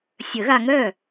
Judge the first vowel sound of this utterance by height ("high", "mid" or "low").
mid